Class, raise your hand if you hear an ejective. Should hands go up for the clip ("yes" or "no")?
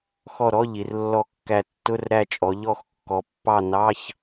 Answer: yes